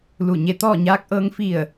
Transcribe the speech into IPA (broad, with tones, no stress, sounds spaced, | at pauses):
l u˧˩ ɲ e˧ t̪ ɔː˥˨ ɲ aː˧ k̚ ʔ ɤː˧ ŋ f i˧˩ ə̯